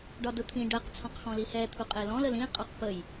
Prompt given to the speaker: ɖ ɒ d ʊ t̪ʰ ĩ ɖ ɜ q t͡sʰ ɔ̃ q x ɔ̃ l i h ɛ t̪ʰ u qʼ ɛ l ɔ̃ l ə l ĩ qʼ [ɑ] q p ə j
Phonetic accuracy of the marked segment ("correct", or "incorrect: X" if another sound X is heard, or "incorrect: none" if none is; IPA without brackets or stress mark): correct